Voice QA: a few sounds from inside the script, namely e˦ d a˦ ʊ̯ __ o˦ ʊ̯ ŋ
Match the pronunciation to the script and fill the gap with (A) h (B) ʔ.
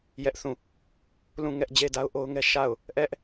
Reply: B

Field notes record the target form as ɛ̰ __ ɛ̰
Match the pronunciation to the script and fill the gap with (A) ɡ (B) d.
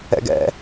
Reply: A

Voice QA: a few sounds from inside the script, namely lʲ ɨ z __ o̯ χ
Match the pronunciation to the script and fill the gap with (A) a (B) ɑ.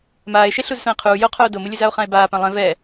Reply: A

